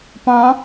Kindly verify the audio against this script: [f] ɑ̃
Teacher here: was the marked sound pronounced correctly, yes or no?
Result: no